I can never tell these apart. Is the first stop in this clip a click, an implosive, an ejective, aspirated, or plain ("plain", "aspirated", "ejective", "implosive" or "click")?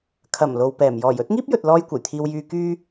aspirated